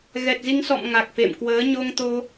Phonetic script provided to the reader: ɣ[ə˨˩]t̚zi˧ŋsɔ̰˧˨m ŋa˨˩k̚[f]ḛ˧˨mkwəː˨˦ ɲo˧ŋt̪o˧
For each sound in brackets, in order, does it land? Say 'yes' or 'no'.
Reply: no, yes

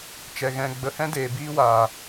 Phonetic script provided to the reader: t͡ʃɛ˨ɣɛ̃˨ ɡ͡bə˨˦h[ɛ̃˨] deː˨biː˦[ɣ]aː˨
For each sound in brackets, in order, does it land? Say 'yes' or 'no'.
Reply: no, no

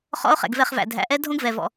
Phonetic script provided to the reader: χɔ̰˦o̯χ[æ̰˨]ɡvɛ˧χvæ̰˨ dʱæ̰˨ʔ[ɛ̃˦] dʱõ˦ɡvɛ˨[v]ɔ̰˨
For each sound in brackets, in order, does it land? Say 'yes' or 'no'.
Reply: no, no, yes

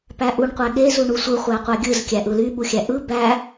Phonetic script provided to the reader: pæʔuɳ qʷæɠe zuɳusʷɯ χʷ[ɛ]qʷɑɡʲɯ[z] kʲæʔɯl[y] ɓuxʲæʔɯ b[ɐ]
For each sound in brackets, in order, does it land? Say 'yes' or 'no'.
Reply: no, yes, yes, no

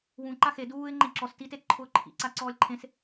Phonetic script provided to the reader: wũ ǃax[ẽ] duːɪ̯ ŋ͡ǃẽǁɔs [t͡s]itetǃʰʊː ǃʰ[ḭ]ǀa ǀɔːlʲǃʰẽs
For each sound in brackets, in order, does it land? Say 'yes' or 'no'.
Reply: no, no, yes

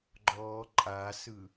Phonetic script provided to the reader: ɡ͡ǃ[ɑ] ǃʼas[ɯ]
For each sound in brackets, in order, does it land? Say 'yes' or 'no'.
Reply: no, yes

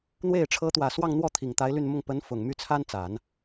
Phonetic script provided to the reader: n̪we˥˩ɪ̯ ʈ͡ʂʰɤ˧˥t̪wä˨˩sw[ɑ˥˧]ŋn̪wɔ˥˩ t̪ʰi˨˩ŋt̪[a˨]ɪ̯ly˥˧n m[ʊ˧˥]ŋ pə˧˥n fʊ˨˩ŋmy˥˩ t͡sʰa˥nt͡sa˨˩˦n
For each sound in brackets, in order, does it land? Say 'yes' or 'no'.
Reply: yes, no, no

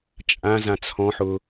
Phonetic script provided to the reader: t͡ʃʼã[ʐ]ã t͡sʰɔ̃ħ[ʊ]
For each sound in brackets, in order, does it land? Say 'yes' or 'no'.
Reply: no, yes

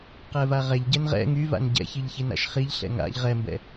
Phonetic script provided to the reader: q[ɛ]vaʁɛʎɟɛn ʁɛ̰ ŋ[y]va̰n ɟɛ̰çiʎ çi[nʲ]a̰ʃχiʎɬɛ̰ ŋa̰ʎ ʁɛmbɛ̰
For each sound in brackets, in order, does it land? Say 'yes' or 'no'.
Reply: yes, yes, no

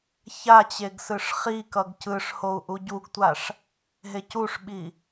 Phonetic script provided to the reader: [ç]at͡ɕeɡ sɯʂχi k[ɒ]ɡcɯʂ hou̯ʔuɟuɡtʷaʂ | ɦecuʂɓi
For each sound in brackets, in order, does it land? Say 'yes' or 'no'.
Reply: yes, no

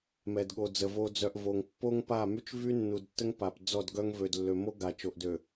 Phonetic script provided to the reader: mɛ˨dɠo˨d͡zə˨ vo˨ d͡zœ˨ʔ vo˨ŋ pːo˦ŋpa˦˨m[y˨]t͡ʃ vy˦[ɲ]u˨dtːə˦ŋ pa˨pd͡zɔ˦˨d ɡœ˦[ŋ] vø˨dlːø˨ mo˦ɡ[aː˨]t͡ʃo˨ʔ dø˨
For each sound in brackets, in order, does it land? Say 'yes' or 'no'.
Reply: no, no, yes, no

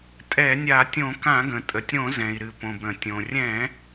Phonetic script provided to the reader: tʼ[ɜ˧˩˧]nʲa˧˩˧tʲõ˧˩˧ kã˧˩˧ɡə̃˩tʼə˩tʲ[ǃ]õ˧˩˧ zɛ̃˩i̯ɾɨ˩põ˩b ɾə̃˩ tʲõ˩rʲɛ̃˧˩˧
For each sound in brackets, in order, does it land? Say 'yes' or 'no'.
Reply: no, no

